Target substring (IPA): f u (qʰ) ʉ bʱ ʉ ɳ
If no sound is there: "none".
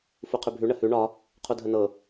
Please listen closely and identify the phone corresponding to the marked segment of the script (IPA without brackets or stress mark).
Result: qʰ